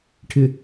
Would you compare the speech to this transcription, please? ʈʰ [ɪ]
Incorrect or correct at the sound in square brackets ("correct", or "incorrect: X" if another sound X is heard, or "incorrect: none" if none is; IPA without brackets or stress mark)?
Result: correct